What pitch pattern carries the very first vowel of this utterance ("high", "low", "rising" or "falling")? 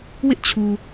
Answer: high